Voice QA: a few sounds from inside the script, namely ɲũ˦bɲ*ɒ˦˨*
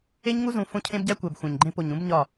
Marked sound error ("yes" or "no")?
no